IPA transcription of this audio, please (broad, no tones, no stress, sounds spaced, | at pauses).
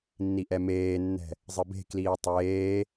nː i ʔ ɛ m eː nː ɛ̤ | zˤ ɨ b e̤ k l iː tˤ eː